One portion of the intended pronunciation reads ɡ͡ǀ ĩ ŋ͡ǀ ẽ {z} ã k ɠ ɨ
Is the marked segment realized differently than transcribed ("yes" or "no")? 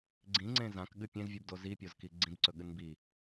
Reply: no